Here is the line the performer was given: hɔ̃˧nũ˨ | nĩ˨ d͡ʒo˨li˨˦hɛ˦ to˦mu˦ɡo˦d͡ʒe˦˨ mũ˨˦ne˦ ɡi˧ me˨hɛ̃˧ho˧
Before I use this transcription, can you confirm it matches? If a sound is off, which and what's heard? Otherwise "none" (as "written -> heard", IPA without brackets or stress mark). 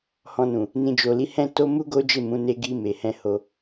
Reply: ɛ˦ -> ɛ̃˦